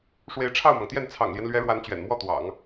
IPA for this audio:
ʂ w e˧˥ ɪ̯ ʈ͡ʂʰ ɑ˥˩ ʊ̯ m ɑ˩ ŋ t̪ j ɛ˥˩ n t͡sʰ ɑ̰˨˩ ŋ l j ɛ˦ n l ɥ ɛ˧˥ ɻ w a˧˥ n t͡ɕ ɥ ɛ̰˨˩ n m w ɔ˥˩ t̪ w ɑ̰˨˩˦ ŋ

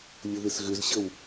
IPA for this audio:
lʲ ʊ ð ɪ s ɣ ʏ z ɕ ə w

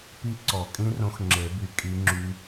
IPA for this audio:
p i˦˥ ǀ ɔ˨˩˦ kʼ ĩ˦˥ r õ˦˥ x ŋ͡ǁ e˨˩˦ b y˨˩˦ kʼ i˦˥ ŋ͡ǁ y˦˥

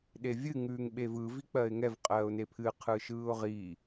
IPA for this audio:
ɗ e vʲ ɨ ŋ ʉː ŋ ɓ e v ɯ v i k͡p ɜ ɪ̯ ŋ ɛ v qʼ ɜː ʊ̯ n e pʰ ɨ qʰ ɯ ʃ ɯː ʊ̯ ʁ i

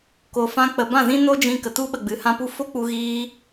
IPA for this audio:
k o˨ f ã˧ k͡p ə˨ b ã˦˨ z ĩ˦ n o˦ d͡ʒ ĩ˧ k ə˨ t u˧ ɓ ə˨ ɡ͡b ɨ˨˦ h ã˦ p u˦ f o˦ k͡p u˧ ɣ iː˧

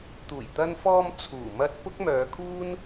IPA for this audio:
t̪ uː˨˩ j t̪ ɐ˧ n f ɔː˧ m t͡sʰ uː˨˩ m ɐ˧ t̚ p ʊ˥ k̚ m œː˨˧ kʰ uː˥ n

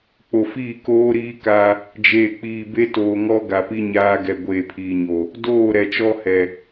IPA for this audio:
k͡p o˨ f iː˦˨ k oː˦ ɾ iː˦ k a˦ | d͡ʒ eː˨ k͡p iː˨ b e˦ t oː˨ ŋ ɔ˦ ɡ a˨ p i˦ ɲ aː˦ ɡ ɛ˨ ɡʷ eː˨ pʰ iː˨ ɲ o˨ | d oː˦˨ ɾ ɛ˨ t͡ʃ ɔ˦ h ɛ˨

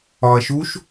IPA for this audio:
ɒ ɐ̯ ʃ u ʃ

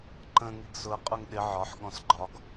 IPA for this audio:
ǃ ə̃ ŋ i ɡ s ʊ ɐ̯ qʼ ʊ ŋ ɗ ɪ ʕ ɒ ħ ɠ ɔ̃ s ɡ͡ǃ ɒ ɡ

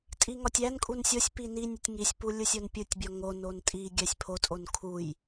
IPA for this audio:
tʼ i ŋ ɒ tʲ æ n kʼ u n sʲ o sʲ p i n i nʲ u tʲ ŋ i sʲ p u lʲ u sʲ o n pʲ u tʲ bʲ ɒ ŋ o n o n tʼ i ɡʲ æ sʲ pʰ o tʼ o n kʰ u j

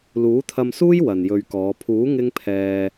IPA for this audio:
l uː˨˥ t̪ʰ ɐ˧ m s uː˥ j w ɐ˨ n j ɵ˧ ɥ k ɔː˨˧ pʰ uː˨˥ ŋ ɪ˥ ŋ pʰ ɛː˧

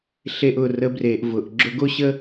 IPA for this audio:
ɬ e˧ ʔ ʊ˨ r ə˨˦ b r e˨ ʔ v ʊ˨ ʔ ɡ͡ǁ ʊ˧ ɡ o˦ ɕ ə˦

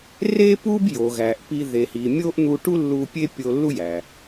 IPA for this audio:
r e˥ p u˥ b j o˩ ɣ æ˩ ʔ p i˧ ð e˩ h i˩ mʲ o˥ ʔ n̪ u˧ ʈ u˥ lː u˧ pʲ e˥ pʲ o˧ lː u˥ j æ˩

